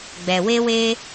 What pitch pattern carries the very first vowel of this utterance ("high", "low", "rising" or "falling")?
low